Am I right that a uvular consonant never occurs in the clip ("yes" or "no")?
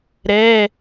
yes